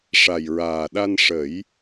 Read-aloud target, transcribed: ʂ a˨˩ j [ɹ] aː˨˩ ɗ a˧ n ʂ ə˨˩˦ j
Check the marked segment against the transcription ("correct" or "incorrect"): correct